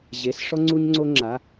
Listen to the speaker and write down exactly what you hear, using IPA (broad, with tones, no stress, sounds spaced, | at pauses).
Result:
ʑ e˧˥˧ s ʂ ɔ˥ ŋ͡ǀ u˥ ɲ ŋ͡ǀ o˥ ŋ͡ǁ a˧˥˧